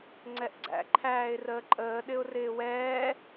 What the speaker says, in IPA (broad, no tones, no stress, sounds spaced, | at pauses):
ŋ͡ǀ ɛ ʔ ɡ͡ǀ æ̰ ǃʰ æː ɪ̯ r əː ǃʼ əː ɗ ɪ ʊ̯ r ɪː w ɛː